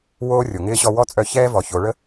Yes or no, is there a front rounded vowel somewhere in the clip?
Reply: yes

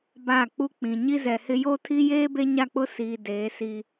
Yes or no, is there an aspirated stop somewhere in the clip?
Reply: yes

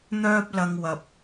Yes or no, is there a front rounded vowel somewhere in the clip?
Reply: yes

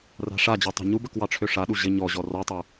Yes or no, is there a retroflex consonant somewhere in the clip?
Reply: yes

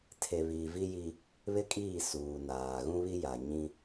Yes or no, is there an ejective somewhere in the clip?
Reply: yes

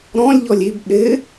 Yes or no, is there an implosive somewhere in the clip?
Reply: yes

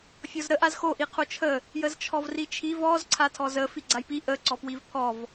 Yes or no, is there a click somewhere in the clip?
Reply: yes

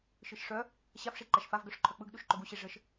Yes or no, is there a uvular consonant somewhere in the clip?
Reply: no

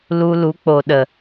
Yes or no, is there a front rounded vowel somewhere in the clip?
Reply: no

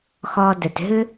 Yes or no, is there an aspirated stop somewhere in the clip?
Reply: no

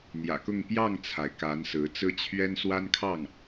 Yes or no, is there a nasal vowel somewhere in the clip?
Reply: no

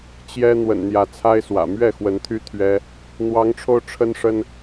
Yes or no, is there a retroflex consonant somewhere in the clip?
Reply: yes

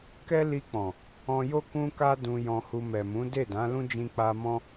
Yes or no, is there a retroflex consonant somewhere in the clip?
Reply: no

